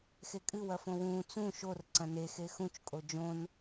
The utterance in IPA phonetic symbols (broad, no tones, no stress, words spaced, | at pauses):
xekʼɨ wɐfõwũː t͡sũ ʃor ǀɐ̃ne xexũt͡ʃ kʼod͡ʒõn